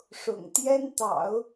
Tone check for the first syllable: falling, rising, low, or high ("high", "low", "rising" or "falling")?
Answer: low